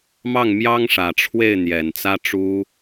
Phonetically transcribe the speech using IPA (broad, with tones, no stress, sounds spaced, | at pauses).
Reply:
m ɑ˥˩ ŋ m j ɑ˥ ŋ ʂ ä˨˩ ʈ͡ʂʰ w e˥˩ ɪ̯ n̪ j ɛ˨˩ n t͡s ä˥ ʈ͡ʂ u˥